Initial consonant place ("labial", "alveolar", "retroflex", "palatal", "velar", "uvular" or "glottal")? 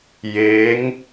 palatal